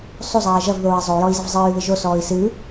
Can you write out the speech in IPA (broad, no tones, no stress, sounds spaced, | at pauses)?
sˤ u zˤ ɛː ʒ ɐ v ð oː i̯ zˤ o y̯ j ɔ i̯ z ɐ v zˤ ɨː y̯ ð ɨ ʒ o s ɔː i̯ s ɨː